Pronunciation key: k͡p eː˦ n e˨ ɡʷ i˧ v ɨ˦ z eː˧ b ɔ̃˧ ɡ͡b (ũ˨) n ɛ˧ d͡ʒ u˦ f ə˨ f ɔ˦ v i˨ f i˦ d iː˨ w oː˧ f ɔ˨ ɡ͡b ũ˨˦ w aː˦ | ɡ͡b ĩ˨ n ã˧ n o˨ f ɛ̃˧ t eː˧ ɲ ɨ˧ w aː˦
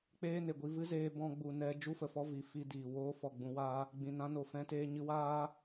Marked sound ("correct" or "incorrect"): incorrect